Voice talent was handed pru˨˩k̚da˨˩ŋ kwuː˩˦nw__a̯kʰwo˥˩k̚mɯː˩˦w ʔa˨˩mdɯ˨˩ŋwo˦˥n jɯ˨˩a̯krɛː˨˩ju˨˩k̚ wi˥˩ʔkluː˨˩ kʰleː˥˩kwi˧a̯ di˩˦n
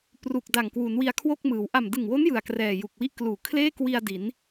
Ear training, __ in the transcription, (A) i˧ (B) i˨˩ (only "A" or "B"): A